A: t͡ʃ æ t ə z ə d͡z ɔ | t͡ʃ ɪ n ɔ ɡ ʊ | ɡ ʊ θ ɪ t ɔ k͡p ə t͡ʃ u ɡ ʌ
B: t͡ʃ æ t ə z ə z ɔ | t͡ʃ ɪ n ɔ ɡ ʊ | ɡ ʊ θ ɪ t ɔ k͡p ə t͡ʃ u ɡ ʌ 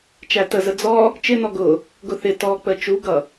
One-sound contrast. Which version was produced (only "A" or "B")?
A